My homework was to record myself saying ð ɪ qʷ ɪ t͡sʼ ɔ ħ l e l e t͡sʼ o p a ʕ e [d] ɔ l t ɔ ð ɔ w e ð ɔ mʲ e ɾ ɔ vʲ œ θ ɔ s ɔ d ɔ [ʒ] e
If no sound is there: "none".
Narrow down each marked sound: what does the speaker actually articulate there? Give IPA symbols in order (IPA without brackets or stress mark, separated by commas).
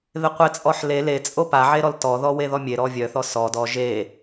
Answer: ɾ, ʒ